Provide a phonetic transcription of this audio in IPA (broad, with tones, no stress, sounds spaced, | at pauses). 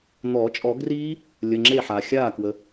n̪ ɔː˨˩˦ t͡ʃʼ ɔ˨˩˦ ɡ r iː˦˥ | lʲ ə˩˧˩ ŋ͡ǁ e˥˩ ħ a˩ xʲ aː˥˩ k w ə˩